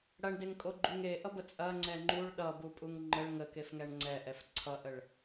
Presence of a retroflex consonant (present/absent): present